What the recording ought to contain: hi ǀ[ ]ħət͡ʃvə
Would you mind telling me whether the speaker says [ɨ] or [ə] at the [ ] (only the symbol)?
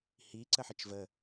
ə